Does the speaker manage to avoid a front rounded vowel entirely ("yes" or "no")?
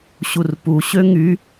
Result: no